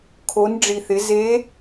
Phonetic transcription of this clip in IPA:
kʰ o˩˧ n ɖ͡ʐ i˩ θ ɪ˩˧ z e˧˥

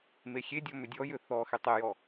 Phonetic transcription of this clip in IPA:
m e xʲ e dʲ ɔ m ʏ dʲ ɔ j ʏ θ ɔ x e tˤ e j ɔ

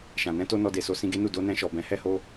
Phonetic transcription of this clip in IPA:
ʃ ã˨ n ɛ̃˧ t o˧ n ɔ˧ d e˨ s o˧ s ĩ˧ ɡ e˦ n u˦˨ d o˧ n ɛ̃˧ ʃ ɔ˨ b ɛ̃˨˦ h ɛ˦ h o˦

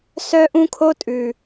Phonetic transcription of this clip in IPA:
s œ˦ ʔ ũ˦ kʰ o˦ tʼ ʉ˨

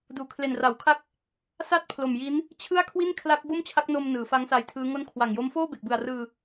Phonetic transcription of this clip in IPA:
d uː˩˦ kʰ l e˨˩ n r a˩˦ w kʰ a˦˥ k̚ | s a˥˩ t̚ pʰ l o˨˩ m j i˦˥ n | t͡ɕʰ ɯ˥˩ a̯ kʰ w i˥˩ n kʰ l a˦˥ k̚ b o˥˩ m t͡ɕʰ a˦˥ k̚ n o˧ m n ɯː˩˦ f a˦˥ ŋ s a˧ j tʰ ɯː˦˥ ŋ o˦˥ n kʰ w a˨˩ ŋ j o˦˥ m f oː˥˩ b e˨˩ k̚ b ɯ˨˩ a̯ r ɯː˧

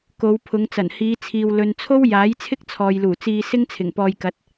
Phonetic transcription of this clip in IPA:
k o˨˧ w pʰ ʊ˨˧ ŋ t͡s ɐ˨˩ n h iː˨˧ t͡sʰ iː˨ w l ɵ˨ n t͡sʰ o˥ w j aː˨˥ j t͡sʰ ɪ˥ k̚ t͡sʰ ɔː˨ j l uː˨˩ t͡s iː˧ s ɪ˥ ŋ t͡sʰ ɪ˨˩ ŋ p ɔː˧ j k ɐ˨˥ t̚

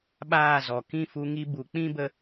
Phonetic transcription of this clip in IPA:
ɓ aː˦˨ z ɔ˨ k ĩ˦˨ f u˧ ŋ i˧ b u˨ k͡p ĩ˦ b ə˧

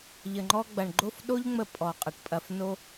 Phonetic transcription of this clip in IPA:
ʎ ə˨ ŋ͡ǃ ɔ˧ ɡ͡b ɐ˨ ɳ ɡ͡ǃ o˦˨ f ɗ o˦ ʎ ŋ͡m ə˧ pʼ ɔ˨ qʼ ə˨ ʈ pʼ ɐ˧ f n o˦

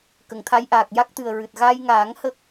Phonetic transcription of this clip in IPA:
k ə˨˩˨ ŋ t̪ʰ a˧˥ j ʔ aː˨˩ k̚ j a˦˥ k̚ t̪ ɨ˨˩ ə̯ ɹ ɨ˨˩ t̚ ɣ a˧ j ŋ aː˨˩˦ ŋ h ə˦˥ k̚

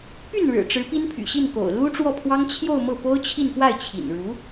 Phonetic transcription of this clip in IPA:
p y˥˩ n ɻ ɻ̩˨˩ ʈ͡ʂ ɻ̩˧˥ p i˥ n pʰ y̰˨˩ ɕ i˥˩ n k o̰˨˩ ʊ̯ l u˥ ʈ͡ʂ w ɔ˥˩ pʰ w ɑ˥ ŋ t͡ɕʰ j o˥˧ ʊ̯ m ɤ˥˩ p o˥ ʊ̯ t͡ɕʰ i˥˧ n p w a˥˩ ɪ̯ t͡ɕʰ ḭ˨˩ n ɻ u˧˥

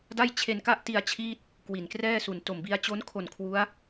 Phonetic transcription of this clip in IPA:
d a˥˩ j t͡ɕʰ e˧ n k a˥˩ ʔ t i˧ a̯ t͡ɕʰ iː˥˩ t̚ | k w i˨˩ n k r ɛː˥˩ s u˨˩ n t o˨˩ m b i˧ a̯ t͡ɕ o˦˥ n kʰ o˨˩ n kʰ w u˦˥ a̯

